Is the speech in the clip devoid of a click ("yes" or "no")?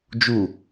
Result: yes